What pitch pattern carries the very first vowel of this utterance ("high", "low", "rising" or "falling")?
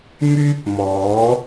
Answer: high